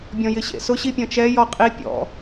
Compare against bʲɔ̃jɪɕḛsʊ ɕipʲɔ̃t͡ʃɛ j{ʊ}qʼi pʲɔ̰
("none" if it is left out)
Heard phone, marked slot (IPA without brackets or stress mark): ɔ